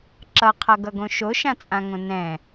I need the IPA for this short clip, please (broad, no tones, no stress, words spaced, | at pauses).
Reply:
ǁʌqʰʌɡʌɡõ ʃoʃãt͡sʼãŋõ nɛ̃